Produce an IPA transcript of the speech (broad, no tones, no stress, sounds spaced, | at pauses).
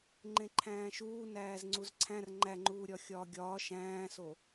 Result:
ŋ͡ǃ ẽ ǃʰ æ̃ː ʃ uː n æː z ŋ͡ǀ u z ǀʰ æ̃ r ŋ͡ǃ æ ŋ͡ǃ uː ɾʲ ɒ xʲ ɒː ɡʲ ɒː ʃ æ̃ː s o